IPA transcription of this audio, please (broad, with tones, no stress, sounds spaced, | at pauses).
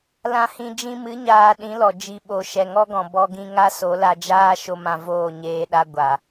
l ã˧ h ĩ˧ d͡ʒ ĩ˧ m ɨ˨˦ ɲ aː˧ ɗ ĩ˨˦ l ɔ˨ d͡ʒ i˨ ɓ o˨ ʃ ɛ˨ ŋ ɔ˦ ɡ ɔ̃˨ b ɔ˧ ɡ ĩ˧ ŋ a˦ s o˨˦ l a˧ d͡ʒ aː˦ ʃ o˧ m ã˧ v oː˦˨ ɲ eː˧ ɗ a˧ ɡʷ a˨